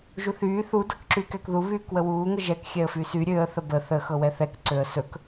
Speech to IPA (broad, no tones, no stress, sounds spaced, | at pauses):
ʒ u θ yː θ u d ɤ k ǁ y k ɛ k ð u β yː k w ə w uː ŋ ə ʒ ɛ k xʲ ɛ ə̯ f y s y ɾʲ ø ə̯ θ ə b ə θ ə x ɤ w ɛ θ ɛ k ǀ ø ə̯ s ɵ k